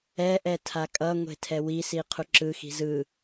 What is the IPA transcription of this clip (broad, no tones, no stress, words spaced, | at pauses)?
ɛʔɛ tʰakʼʌŋʷe̤ tʰɛwisi qʰuǁɯxi̤ zɯ